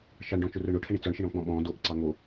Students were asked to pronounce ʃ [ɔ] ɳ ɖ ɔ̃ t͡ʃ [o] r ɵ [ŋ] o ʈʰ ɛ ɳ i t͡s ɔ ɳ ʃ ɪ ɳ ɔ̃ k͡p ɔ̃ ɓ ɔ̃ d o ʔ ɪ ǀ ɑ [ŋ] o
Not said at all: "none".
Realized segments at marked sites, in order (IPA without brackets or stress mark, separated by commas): ɑ, ɵ, ɳ, ŋ